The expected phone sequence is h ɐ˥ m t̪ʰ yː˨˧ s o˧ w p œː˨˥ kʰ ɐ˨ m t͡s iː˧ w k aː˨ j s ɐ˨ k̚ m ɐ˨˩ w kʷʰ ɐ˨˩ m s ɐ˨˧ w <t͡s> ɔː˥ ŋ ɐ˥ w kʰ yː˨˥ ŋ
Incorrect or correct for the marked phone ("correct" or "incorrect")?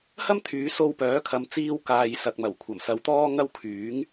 incorrect